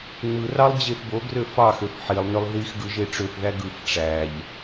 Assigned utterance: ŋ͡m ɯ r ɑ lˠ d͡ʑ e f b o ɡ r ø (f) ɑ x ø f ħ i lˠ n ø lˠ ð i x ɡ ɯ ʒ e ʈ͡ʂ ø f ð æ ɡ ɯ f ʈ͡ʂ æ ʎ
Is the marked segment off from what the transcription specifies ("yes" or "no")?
no